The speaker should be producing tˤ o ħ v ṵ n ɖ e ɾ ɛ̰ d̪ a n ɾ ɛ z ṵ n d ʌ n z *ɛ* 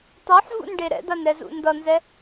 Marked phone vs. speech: correct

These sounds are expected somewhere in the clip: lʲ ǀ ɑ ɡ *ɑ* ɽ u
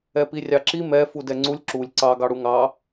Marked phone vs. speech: correct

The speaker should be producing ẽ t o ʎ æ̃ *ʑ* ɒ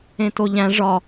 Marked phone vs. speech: incorrect: ʐ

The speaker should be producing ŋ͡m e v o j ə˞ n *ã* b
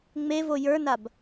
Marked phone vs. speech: incorrect: a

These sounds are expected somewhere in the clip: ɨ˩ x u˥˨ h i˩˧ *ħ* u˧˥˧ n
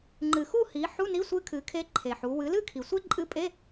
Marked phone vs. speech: correct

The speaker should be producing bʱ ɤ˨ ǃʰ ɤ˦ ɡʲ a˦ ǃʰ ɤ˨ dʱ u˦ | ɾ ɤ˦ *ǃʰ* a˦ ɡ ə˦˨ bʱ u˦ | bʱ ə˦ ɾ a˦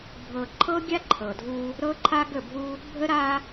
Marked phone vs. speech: correct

